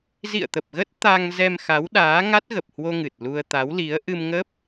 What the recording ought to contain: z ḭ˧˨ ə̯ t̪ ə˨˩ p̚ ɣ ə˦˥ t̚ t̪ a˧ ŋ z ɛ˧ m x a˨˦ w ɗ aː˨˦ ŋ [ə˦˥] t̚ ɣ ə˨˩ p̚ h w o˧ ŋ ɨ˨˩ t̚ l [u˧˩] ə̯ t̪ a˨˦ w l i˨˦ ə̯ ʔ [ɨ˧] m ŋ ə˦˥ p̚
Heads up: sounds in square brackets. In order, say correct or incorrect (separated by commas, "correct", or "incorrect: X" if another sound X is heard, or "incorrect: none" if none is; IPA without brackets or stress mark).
incorrect: a˦˥, incorrect: u˧, correct